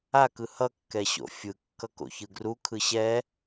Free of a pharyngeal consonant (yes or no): yes